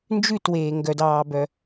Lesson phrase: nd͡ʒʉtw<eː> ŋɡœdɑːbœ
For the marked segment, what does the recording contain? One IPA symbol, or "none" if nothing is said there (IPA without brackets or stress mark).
eː